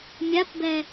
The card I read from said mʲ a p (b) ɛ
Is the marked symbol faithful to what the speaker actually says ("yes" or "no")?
yes